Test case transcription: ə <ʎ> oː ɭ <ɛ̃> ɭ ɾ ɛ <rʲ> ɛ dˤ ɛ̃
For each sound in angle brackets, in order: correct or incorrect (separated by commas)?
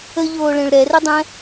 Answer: correct, incorrect, incorrect